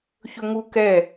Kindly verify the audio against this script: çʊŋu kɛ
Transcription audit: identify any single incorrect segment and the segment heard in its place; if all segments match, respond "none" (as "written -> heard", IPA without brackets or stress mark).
ʊ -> ɵ